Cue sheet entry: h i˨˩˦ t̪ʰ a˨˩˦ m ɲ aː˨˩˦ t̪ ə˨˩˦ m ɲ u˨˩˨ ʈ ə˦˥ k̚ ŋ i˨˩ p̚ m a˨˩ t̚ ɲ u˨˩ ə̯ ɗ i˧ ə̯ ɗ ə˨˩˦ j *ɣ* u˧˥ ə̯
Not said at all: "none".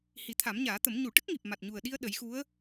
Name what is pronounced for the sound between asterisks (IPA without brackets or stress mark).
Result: x